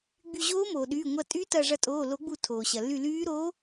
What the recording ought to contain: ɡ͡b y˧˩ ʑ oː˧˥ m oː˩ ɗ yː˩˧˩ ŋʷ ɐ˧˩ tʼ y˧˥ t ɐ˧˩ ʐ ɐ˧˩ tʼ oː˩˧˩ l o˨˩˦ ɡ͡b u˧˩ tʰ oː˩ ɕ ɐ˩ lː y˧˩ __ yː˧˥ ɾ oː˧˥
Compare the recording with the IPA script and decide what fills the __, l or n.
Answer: l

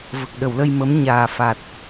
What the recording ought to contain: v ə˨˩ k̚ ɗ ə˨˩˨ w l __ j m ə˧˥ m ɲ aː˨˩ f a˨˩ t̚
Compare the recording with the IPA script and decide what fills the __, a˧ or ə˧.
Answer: ə˧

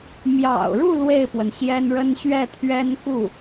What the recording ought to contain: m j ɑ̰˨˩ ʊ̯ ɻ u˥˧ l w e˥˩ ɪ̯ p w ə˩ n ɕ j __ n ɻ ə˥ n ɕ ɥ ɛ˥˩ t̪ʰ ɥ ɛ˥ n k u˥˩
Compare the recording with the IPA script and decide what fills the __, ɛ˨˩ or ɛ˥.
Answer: ɛ˥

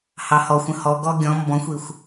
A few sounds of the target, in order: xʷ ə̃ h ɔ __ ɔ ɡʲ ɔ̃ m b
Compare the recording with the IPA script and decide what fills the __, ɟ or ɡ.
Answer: ɡ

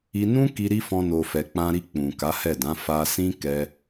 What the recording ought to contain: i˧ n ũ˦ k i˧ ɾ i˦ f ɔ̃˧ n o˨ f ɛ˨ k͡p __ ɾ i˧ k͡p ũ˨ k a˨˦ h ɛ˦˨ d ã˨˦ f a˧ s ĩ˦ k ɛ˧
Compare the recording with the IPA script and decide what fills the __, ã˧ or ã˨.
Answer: ã˧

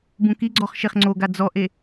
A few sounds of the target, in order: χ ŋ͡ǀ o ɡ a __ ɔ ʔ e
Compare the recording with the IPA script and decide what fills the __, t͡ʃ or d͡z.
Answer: d͡z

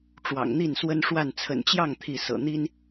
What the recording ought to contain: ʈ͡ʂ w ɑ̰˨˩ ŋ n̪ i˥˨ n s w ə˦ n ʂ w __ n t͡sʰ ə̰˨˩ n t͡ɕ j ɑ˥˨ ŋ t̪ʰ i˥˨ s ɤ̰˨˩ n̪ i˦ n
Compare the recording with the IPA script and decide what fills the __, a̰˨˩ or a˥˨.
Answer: a˥˨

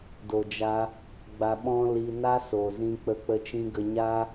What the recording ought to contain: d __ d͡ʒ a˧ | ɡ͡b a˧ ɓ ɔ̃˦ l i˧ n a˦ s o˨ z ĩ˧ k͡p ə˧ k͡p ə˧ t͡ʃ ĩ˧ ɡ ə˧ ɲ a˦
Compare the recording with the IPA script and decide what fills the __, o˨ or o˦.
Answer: o˨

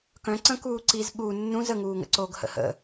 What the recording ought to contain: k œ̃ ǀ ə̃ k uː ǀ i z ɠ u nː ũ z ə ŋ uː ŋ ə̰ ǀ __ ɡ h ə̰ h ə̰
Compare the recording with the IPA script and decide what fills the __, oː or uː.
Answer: oː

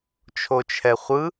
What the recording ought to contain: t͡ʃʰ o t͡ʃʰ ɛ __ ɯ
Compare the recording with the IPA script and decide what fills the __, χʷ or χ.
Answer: χʷ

